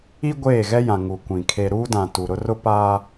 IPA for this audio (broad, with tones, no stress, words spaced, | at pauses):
i˦ ɡʷeː˦˨ɣɛ˦jã˨ ŋu˨kʷĩ˨ kʰe˨ ɾuː˦dã˨ tu˨ ɾʊ˦rʊ˦paː˦